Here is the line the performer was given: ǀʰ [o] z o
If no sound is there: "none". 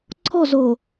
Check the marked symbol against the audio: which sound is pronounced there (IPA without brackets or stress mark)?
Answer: ɔ